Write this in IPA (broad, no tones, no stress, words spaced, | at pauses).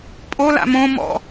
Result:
pʼola̰ mõ mɔ̰